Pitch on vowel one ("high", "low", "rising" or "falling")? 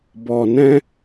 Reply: low